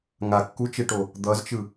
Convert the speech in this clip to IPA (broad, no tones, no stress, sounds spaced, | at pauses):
ŋ a kː u t͡ʃ e ʈ o | d̪ ʌ z t͡ʃ ɯ